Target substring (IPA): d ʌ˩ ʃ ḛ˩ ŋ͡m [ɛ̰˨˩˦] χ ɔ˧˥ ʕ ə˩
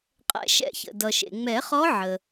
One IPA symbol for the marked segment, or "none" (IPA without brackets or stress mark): ɛ˨˩˦